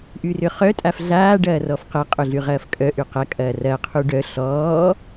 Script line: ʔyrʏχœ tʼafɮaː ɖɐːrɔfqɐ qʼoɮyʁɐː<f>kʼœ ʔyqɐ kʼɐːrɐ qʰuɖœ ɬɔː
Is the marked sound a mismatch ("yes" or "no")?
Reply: no